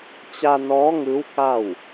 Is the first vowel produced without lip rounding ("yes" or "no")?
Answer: yes